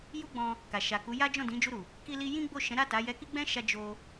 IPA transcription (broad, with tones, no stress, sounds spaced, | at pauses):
j u˦ ɡ͡b ɔ̃˧ | k a˨ ʃ a˨ k u˨˦ j a˦ d͡ʒ ɔ̃˦˨ d ĩ˨˦ d͡ʒ u˧ ɾ u˨ | k i˧ l i˧ j ĩ˦ ɡ͡b o˦˨ ʃ ɛ̃˨˦ ɾ a˦˨ t a˨˦ j ɛ˧ k i˦ ɡ͡b ɛ̃˦ ʃ a˧ d͡ʒ o˧